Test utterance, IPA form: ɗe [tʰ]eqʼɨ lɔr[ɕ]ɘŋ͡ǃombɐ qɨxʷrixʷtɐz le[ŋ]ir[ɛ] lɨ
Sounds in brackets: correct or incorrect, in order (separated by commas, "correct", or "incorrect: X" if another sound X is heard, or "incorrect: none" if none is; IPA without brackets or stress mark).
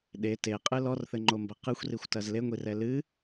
incorrect: t, incorrect: θ, incorrect: ŋʷ, correct